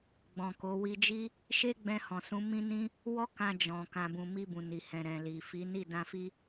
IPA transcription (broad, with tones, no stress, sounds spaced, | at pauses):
ɡ͡b ɔ̃˨ k o˨˦ w i˧ d͡ʒ i˦ | ʃ e˦ ɡ͡b ɛ̃˧ h ɔ̃˨ s ũ˨˦ m ĩ˦ n ĩ˦ | w ɔ˦ k ã˧ d͡ʒ ɔ̃˨ k ã˨ b ũ˨ m i˧ b ũ˨ n i˨ h ɛ̃˨ ɾ ɛ̃˨ l i˨ f i˨˦ n i˦˨ d ã˧ f i˦